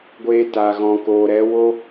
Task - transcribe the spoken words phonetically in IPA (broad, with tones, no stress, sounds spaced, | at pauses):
ɡʷ eː˧ t a˨ ɣ ɔ̃˨ k oː˨ ɾ ɛ˨˦ w o˦